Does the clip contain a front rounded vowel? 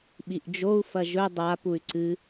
yes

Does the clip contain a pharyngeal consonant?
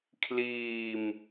no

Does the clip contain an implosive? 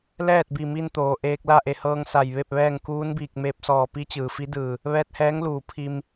no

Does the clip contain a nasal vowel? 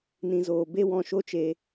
yes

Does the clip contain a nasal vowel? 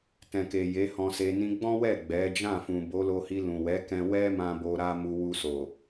yes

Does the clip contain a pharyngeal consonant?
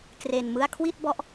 no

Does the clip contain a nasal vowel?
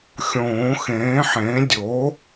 yes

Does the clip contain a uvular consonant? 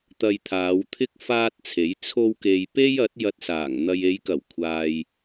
no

